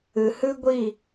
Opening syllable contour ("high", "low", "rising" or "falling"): low